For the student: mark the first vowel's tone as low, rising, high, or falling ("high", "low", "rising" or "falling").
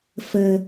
low